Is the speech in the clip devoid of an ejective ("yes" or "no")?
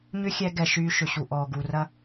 yes